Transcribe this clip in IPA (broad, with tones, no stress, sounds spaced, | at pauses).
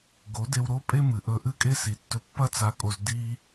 ɡ o˨˦ d e˧ w ɾ o˦ pʼ e˦ m ɨ˨ ʔ ɵ˧ ʔ ɨ˦ kʼ e˦ s i˨ tː ɵ˧ pː ɐ˦ t͡s a˧ kʼ o˧ z d i˦